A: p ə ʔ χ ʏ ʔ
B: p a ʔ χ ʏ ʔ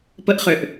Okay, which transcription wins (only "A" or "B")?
A